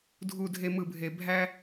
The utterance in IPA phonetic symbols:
dʱ u˨ dʱ e˨ m ɯ˨ bʱ e˨ bʱ æ˦

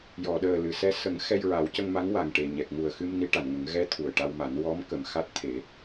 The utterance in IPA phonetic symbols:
j ɔ˨˩˨ ɗ əː˨˩ l ɨ˨˩˨ s ɛ˧ s ə˨˩˦ ŋ x ɛ˧ j ɹ a˨˩˦ w c ə˧ ŋ m a˧˥ ŋ w a˨˩ ŋ ʈ e˨˩ ɲ ɛ˨˩ k̚ ŋ u˨˩ ə̯ x ɨ˧ m n i˧˥ ʈ a˨˩˨ n ŋ ə˨˩˦ ŋ ɣ ɛ˧˥ t̪ʰ u˨˩ ə̯ ʈ a˧ w m a˨˩˦ n w ɔ˧˥ m k ə˨˩ m x a˦˥ t̚ t̪ʰ e˨˩˦

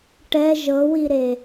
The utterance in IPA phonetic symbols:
ʈ ɛ ʒ ɤ w i ɾ e

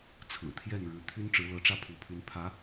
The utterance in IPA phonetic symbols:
t͡sʰ ɹ̩˨˩ t̪ʰ j ɛ˥˩ n ɻ ɻ̩˧˥ t̪ʰ y˥ n ʈ͡ʂ ɻ̩˧˥ l ɤ˧˥ ʈ͡ʂ ä˥˩ pʰ u˧˥ pʰ y˧˥ n pʰ ä˧˥

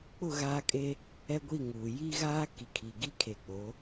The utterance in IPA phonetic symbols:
k͡p ʊ˦˨ ɣ aː˦ kʼ e˦ | ɛ˦ ɡʷ i˦˨ ŋ uː˨ j i˦ ɣ aː˦ k i˨ kʰ i˨ ɡ i˦ kʰ e˨ k͡p o˨˦

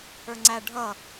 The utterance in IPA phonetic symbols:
ə˞ ŋ͡ǀ æ ɖʱ ʌ

